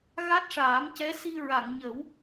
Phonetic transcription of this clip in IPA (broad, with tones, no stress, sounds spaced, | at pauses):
ɣ a˦˥ t̚ ʂ aː˨˩˦ m c ɛ˧˥ s i˧ ɹ a˨˩˨ ŋ ɲ ə˨˩˦ w